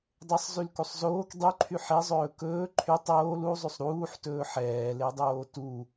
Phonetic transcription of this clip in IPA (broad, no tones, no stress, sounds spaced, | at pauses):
dˤ e sˤ z y l k u sˤ z oː k dˤ y ǃʰ y ħ e zˤ ɵː k ɵː ǃʰ y tˤ oː l u zˤ y sˤ ɾ uː ħ t ɵː ħ ɛː l e dˤ oː t u